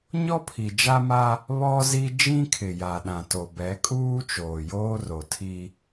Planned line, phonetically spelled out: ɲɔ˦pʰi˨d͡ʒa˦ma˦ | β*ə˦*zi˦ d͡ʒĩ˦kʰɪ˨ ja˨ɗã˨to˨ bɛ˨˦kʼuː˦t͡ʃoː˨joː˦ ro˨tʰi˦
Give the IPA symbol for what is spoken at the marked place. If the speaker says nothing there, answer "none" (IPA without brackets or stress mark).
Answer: ɔ˦